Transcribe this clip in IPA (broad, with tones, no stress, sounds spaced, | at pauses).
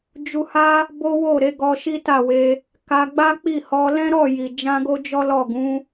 d͡ʒ u˧ h a˦ | b o˦ w o˦˨ ɾ e˨˦ ɡ ɔ˧ ʃ i˦ t a˦˨ w e˧ | k a˧ ɡ͡b a˦ k͡p i˦˨ h ɔ˧ l ɛ̃˦ ɾ ɔ˦˨ j i˨ d͡ʒ ã˧ ɡ o˦ d͡ʒ ɔ˦ l ɔ˦˨ ɡ ũ˨˦